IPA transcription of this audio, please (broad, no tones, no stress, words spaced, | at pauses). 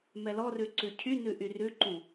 mɛlɔrʉ ǀʉcʰynʉ ʔyrʉǃũ